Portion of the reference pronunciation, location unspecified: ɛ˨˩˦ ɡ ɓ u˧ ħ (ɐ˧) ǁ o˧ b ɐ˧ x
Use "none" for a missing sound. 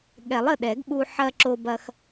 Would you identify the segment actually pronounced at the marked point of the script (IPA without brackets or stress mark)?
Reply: ɐ˧